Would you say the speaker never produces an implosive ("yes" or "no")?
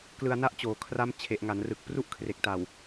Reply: yes